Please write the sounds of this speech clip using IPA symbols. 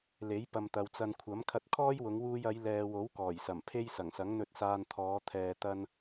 l e˨˥ j p ɐ˨ m t̪ ɐ˨ w t͡s ɐ˧ n kʷʰ ɐ˨˥ m kʰ ɐ˧ t̚ kʰ ɔː˥ j w ʊ˨˧ ŋ w uː˧ j ɐ˨˧ j l ɛː˨ w o˨˥ w k ɔː˨˩ j s ɐ˨˩ m pʰ e˥ j s ɐ˨˩ ŋ s ɐ˨˥ ŋ n̪ ɵ˨ t̚ s aː˨ n t̪ʰ ɔː˨˧ t̪ʰ ɛː˨ t̪ ɐ˧ n

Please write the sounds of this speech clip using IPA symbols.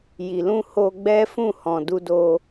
j i˨ l ũ˧ h o˧ ɡ͡b ɛ˦ f ũ˦˨ h ɔ̃˨ d u˧ d o˧

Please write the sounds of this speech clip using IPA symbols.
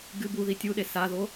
ɡ ɨ b u ð i tʲ u ɗ e s a ð o

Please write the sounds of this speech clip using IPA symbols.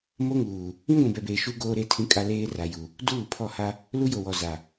m o˦ ŋ uː˨ | ĩ˦ ɡʷ ĩ˨ b ɛ˨ b eː˨ ʃ u˦ ɡ oː˦ ɾ e˦ tʰ ĩ˦ kʼ a˦ l eː˦ r a˨ j u˨ | d uː˦˨ pʰ ɔ˦˨ h a˦ | l u˦ j o˨ w ɔ˨ z a˨

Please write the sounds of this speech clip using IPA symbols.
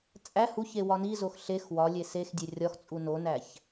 t͡sʼ æ h u ç e w ɒ n i z o x ɬ e x w ɒ lʲ e s e x dʲ e rʲ ɒ x t͡sʼ u n o n æ ç

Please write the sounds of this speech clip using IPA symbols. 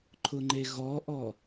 ǃʰ ʊ ŋ͡ǃ e ɣ ɔ ʔ ɔ

